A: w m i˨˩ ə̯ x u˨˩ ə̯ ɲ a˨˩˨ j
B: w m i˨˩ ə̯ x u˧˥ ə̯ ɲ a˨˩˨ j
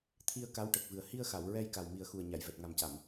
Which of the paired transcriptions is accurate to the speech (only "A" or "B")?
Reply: A